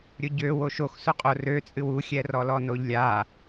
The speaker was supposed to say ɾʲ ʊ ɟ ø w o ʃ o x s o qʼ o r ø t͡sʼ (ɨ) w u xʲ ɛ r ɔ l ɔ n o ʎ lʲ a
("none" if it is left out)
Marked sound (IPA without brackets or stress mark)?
ɨ